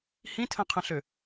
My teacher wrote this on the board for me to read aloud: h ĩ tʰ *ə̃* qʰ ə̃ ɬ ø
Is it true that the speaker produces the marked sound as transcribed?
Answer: yes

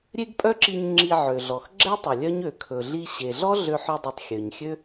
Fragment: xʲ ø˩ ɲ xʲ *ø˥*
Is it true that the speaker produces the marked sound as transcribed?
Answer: yes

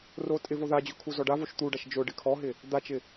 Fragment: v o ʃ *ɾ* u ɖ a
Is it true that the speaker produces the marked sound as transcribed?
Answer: no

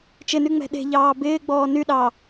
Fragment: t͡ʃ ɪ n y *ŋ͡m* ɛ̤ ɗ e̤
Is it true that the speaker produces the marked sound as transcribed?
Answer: yes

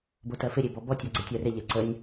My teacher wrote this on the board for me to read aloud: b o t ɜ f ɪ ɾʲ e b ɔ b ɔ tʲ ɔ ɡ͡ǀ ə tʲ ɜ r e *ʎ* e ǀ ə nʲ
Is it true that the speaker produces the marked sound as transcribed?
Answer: yes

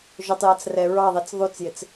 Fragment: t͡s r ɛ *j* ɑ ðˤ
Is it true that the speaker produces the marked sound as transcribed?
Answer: no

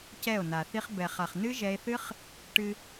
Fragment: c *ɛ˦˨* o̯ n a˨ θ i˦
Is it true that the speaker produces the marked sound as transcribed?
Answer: yes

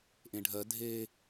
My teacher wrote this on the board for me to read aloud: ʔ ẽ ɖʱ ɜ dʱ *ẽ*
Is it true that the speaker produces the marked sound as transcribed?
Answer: no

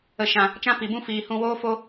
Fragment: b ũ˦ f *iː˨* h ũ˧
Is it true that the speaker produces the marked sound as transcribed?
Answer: yes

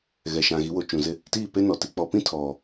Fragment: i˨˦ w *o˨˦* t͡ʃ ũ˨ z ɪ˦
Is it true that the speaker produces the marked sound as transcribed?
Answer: yes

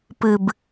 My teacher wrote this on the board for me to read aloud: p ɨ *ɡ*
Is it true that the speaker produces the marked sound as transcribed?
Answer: no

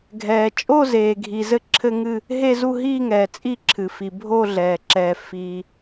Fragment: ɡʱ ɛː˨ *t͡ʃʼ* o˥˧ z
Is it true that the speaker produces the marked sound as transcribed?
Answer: yes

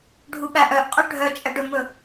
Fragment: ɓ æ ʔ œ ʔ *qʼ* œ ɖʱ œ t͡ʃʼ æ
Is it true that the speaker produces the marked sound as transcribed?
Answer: yes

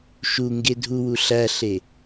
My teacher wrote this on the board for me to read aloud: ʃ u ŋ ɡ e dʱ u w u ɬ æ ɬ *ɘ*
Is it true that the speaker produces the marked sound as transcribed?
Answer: no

